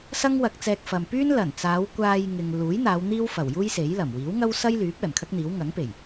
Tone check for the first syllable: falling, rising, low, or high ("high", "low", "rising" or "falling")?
high